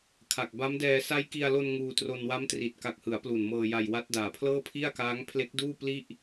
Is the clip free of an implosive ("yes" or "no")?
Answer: yes